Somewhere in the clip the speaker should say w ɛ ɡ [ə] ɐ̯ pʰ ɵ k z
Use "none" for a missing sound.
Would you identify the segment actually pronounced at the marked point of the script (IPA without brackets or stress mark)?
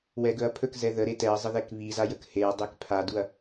ɵ